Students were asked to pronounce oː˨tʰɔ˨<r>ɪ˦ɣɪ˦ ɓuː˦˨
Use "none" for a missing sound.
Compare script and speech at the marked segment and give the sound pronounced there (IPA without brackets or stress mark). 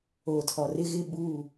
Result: r